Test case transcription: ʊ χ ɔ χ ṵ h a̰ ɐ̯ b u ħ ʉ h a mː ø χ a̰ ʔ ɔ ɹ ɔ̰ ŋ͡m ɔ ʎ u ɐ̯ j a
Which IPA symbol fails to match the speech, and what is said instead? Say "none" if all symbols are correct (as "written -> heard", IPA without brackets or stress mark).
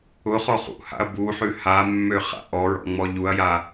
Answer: none